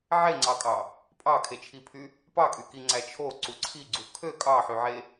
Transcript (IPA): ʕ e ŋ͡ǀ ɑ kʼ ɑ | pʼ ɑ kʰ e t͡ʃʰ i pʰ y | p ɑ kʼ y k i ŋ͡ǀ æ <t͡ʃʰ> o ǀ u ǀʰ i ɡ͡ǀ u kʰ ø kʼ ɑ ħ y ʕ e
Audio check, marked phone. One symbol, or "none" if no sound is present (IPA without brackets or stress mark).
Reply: t͡ʃʰ